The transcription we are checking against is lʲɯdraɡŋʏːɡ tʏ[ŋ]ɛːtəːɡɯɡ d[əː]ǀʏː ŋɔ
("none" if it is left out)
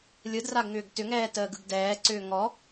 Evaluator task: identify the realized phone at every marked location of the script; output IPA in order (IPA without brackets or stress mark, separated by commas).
ŋ, ɛː